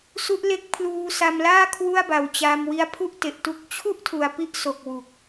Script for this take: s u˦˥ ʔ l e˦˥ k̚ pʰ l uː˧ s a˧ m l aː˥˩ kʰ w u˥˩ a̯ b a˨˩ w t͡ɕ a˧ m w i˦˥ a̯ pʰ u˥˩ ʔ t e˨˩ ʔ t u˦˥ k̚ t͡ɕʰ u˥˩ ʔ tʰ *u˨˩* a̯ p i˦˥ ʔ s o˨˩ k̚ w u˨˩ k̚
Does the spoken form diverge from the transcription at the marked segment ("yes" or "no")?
no